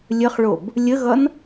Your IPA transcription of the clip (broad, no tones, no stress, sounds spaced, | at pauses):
lʲ ə χ ɭ o b | lʲ ə ɣ ʌ n